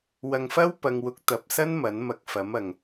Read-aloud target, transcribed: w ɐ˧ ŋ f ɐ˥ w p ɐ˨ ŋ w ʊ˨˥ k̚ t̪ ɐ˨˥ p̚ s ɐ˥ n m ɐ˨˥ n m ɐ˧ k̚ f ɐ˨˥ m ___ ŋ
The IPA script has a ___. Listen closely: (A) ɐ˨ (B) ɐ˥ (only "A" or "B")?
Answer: A